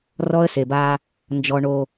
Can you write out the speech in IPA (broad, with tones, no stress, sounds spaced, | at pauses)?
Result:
r ɔ˦ ə̯ s e˨ b aː˦ | n d͡ʒ ɔ˨ ɳ o˨